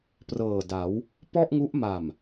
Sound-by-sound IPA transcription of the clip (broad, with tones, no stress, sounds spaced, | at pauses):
p r ɤː˨˩ d a˩˦ w | p ɔ˥˩ ʔ ŋ u˦˥ ʔ m a˨˩ m